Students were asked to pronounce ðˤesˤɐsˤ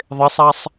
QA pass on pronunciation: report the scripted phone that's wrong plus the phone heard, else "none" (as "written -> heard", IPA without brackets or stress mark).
ɐ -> a